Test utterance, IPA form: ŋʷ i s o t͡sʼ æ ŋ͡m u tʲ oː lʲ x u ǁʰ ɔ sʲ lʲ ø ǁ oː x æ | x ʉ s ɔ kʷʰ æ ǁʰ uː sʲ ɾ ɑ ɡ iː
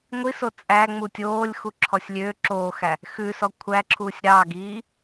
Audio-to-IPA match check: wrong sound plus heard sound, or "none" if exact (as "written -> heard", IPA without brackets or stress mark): none